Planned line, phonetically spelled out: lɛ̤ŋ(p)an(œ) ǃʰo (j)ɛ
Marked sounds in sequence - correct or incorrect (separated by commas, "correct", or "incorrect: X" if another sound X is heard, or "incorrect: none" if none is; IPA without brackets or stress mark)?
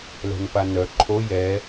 correct, correct, correct